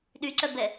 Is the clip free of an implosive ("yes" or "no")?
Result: no